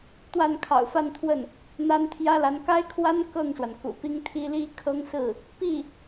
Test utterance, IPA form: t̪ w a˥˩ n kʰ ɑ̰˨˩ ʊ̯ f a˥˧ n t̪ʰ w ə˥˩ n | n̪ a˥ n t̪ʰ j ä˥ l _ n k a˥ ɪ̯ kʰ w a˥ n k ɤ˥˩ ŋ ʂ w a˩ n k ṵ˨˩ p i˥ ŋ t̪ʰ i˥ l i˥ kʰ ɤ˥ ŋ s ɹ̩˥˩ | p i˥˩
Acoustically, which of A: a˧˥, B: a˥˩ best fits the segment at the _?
A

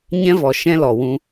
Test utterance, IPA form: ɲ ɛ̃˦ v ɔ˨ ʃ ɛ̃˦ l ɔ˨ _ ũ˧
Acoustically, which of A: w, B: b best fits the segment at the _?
A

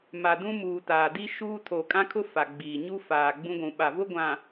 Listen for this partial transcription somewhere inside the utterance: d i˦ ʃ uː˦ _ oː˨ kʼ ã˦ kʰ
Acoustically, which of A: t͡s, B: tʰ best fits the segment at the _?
B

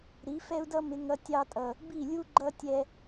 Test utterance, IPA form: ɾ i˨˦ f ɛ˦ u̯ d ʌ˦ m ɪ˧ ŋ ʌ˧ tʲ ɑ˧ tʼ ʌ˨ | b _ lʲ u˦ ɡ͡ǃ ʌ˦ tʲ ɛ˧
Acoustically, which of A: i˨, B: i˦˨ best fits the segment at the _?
B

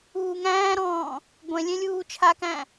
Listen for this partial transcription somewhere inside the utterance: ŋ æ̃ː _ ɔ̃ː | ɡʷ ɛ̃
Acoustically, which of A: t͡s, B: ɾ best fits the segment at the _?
B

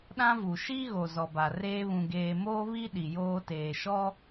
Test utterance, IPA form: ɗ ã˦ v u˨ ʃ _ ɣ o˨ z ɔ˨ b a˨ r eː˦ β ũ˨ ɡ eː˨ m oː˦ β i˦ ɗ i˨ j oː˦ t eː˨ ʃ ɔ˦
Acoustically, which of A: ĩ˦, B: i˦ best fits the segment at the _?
B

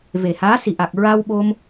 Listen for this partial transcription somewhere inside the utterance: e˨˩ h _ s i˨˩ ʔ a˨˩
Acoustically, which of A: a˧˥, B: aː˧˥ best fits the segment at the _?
B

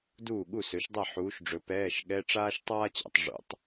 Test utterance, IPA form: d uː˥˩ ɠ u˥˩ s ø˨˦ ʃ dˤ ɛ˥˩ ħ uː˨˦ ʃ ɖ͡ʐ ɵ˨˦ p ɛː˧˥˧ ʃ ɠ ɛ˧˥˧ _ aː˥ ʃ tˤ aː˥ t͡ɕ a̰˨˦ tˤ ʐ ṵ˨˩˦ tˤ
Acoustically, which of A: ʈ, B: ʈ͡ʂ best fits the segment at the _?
B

